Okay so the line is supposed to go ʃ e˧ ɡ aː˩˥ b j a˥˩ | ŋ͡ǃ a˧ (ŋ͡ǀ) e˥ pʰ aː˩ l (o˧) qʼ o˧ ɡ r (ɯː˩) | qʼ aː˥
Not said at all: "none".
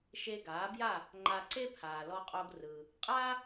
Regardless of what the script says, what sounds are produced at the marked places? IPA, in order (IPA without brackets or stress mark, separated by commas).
ǀ, ɔ˧, ɯː˩